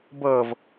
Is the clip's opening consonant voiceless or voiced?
voiced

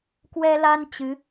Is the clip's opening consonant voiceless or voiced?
voiceless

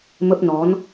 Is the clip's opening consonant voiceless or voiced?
voiced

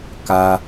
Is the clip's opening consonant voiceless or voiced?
voiceless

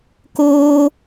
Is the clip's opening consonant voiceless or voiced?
voiceless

